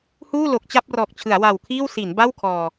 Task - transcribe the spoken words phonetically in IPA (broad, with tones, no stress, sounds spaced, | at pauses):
h uː˥˩ l o˨˩ k̚ t͡ɕ a˥˩ p̚ r ɔː˨˩ k̚ t͡ɕʰ ɯ˩˦ a̯ w a˨˩ w kʰ iː˥˩ w s i˩˦ n b a˥˩ w kʰ ɔː˨˩